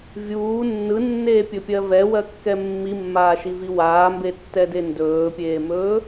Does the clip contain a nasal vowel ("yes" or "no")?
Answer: no